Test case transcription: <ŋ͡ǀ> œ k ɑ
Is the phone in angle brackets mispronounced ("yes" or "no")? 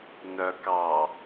yes